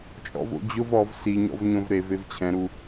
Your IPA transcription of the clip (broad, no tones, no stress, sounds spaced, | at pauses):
t͡ʃʼ ɔ̰ v o̰ d͡ʑ ʊ v ɔ v s i ɲ ɔ̰ v ɲ õ v ɾ e v e v t͡ɕʰ ɛ̃ ɾ u